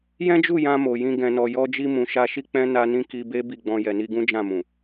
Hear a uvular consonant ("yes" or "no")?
no